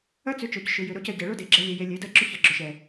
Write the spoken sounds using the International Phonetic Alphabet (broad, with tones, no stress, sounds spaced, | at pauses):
ɐ˦ t͡s ʏ˨˦ t͡ʃ o˨ c ʃ ʏ˨ j ʏ˨ ɾ o˧ c ɐ˨ ɟ e˨ ɭ o˦ d e˨ ɡ͡ǁ ɛ˧ lʲ e˧ j e˧ lʲ e˨˦ d ɐ˦ ɡ͡ǁ ʏ˦ ç ɐ˨ ɡ͡ǁ ʏ˨ ʃ ɛ˨